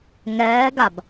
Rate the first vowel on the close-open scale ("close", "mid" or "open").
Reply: mid